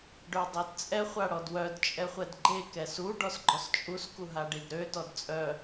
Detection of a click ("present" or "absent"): present